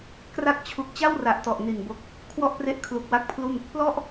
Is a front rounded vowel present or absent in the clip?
absent